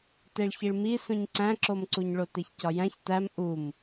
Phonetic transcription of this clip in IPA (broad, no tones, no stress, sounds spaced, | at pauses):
t e ɭ ç i ɭ m i s ũ ɲ ǀ æ̃ ǁ o m ǀ u ɲ ɭ o t e ç c ɒ j æ̃ ç t æ m ʔ u m